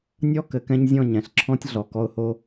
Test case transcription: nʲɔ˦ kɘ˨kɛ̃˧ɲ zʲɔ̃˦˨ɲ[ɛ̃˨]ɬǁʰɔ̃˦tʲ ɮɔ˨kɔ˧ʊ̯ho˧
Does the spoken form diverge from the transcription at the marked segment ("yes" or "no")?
no